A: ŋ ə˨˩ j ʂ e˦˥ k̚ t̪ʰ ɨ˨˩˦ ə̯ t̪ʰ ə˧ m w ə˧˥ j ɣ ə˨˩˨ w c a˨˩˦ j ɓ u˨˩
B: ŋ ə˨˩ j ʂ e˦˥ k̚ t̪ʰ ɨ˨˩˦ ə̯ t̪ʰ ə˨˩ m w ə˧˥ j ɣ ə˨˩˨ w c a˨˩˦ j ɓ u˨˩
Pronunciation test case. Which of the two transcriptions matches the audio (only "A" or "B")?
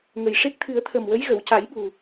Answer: B